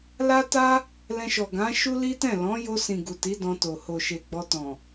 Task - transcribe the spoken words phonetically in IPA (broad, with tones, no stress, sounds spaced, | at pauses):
l a˦ t a˦ | l ɛ̃˧ ʃ ɔ˨ ɡ ã˨˦ ʃ u˦ l i˦ t ɛ̃˦˨ l ɔ̃˨˦ j o˧ s ĩ˨ ɡ u˨ t i˨˦ d ɔ̃˧ t o˨ h o˨ ʃ e˨ ɡ͡b ɔ˧ t ɔ̃˨